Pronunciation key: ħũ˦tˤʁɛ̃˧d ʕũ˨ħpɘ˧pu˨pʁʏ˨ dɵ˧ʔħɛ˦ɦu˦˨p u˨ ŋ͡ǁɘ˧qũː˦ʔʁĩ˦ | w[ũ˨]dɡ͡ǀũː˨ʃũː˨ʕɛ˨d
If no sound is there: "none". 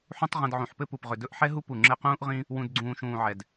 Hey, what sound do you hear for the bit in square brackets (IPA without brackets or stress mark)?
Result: ũ˨